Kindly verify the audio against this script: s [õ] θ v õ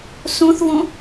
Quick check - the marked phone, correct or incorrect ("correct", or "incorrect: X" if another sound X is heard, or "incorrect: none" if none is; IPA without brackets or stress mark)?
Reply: correct